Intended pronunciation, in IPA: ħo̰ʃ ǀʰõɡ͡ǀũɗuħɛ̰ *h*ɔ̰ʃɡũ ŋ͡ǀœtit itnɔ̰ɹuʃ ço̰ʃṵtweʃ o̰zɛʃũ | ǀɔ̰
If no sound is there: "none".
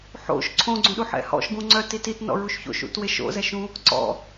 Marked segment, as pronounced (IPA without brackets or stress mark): h